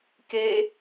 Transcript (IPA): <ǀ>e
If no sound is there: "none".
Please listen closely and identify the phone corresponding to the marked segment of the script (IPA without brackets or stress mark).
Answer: k